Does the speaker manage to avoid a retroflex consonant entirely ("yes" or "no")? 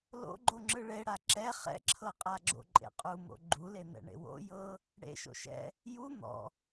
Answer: no